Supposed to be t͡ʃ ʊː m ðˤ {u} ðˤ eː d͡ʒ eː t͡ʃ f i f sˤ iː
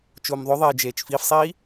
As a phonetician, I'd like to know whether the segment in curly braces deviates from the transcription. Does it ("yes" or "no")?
yes